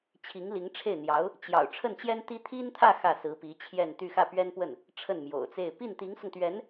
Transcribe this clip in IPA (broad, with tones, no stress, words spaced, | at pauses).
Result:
t͡ɕʰi˧˥ŋli˧˥ŋʈ͡ʂʰe˥˩ɪ̯n̪jɑ˧˥ʊ̯ | t͡ɕjɑ̰˨˩ʊ̯ ʈ͡ʂʰə˥˩nt͡ɕjɛ˥nt̪i˥ t̪ʰi˥nt̪ʰä˥˧ xä˥˩sɹ̩˧˥pi˧˥ t͡ɕʰjɛ˥˧nt̪y˥˧ xä˥˩pɥɛ˥npwə˥˩n | ʈ͡ʂʰə˥˩nmjo̰˨˩ʊ̯t͡se˥˧ɪ̯ pi˥˩nt̪i˧˥ŋsʊ˧ŋt̪ɥɛ˧˥n